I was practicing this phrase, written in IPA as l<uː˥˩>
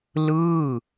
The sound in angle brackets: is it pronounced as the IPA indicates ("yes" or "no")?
no